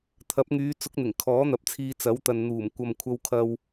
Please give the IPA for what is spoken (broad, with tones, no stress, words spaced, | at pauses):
t̪ʰɐ˨˥p̚ŋyː˨˧ t͡sʊ˨˥k̚n̪ɪ˨˩ŋ kʰɔː˨˥n̪ɐ˨˥p̚t͡sʰiː˧ t͡sɐ˨˥wt̪ɐ˨n n̪uː˨˩m kʷɐ˨mkʷʰɐ˧wkʰɐ˧w